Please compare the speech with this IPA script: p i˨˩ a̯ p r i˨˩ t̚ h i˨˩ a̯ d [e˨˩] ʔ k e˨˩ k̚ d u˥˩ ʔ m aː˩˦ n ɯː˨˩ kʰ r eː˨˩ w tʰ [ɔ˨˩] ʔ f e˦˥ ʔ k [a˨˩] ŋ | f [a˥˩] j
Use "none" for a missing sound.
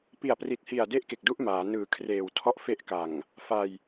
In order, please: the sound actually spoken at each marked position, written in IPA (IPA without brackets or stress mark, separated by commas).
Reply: e˥˩, ɔ˥˩, a˨˩, a˧